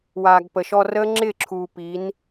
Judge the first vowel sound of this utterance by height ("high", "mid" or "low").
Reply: low